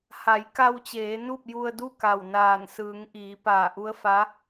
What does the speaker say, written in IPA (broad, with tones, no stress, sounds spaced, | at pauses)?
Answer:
h a˩˧ j k a˧ w t͡ɕ eː˩˧ n u˥˨ p̚ j u˧ ə̯ d u˥˨ k a˧˩ w n aː˧˩ n s ɯː˩˧ ŋ ʔ iː˩˧ p aː˧˩ ʔ u˧˥ ə̯ f a˧˥